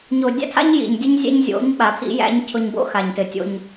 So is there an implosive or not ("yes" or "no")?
yes